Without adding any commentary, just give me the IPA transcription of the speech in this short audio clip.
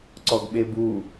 ǀ ɔ ɡ ɓ e b uː

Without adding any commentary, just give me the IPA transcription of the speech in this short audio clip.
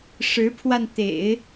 ʂ ɻ̩˧˥ pʰ w a˧ n t̪ ḛ˨˩˦ ɪ̯

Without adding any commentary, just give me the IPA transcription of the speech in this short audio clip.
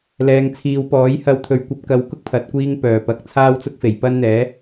l ɛː˨˧ ŋ t͡sʰ iː˨˧ w p ɔː˨˥ j h ɐ˧ w t̪ʰ ɵ˨˧ ɥ kʷ ɐ˨˥ p̚ k ɐ˨˧ w k ʊ˥ k̚ pʰ ɐ˨ t̚ kʷ iː˥ ŋ p œː˨˩ p ɐ˨ k̚ t͡sʰ aː˥ w t͡s ʊ˥ k̚ f e˨˩ j p ɐ˥ n n̪ ɛː˨˥

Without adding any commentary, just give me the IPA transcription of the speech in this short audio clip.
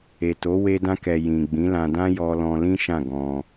e˨ t o˨˦ w e˧ d ã˧ k ɛ˨ j ĩ˨ ɡ͡b ĩ˨˦ l ã˧ d ã˦ j ɔ˧ l ɔ̃˧ l ĩ˦ ʃ ã˦˨ ɡ ɔ̃˧

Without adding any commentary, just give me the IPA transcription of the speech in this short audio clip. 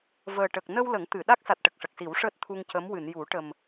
v əː˨˩ ʈ ə˨˩ k̚ n ə˧ w l ə˨˩˦ ŋ t̪ ɨ˨˩˨ ɗ a˦˥ k̚ s a˨˩ t̚ ʈ ə˨˩ k̚ ʂ ə˨˩ k̚ s i˨˩˦ w ʂ əː˦˥ t̚ t̪ʰ u˧ ŋ c ə˧˥ m w ɨ˨˩˨ n j u˨˩˦ ʈ ə˨˩ m

